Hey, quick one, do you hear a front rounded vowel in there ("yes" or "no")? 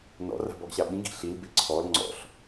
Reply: no